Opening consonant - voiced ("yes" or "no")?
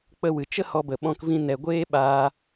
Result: no